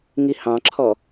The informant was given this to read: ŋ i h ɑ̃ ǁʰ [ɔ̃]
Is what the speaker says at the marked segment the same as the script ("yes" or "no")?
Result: no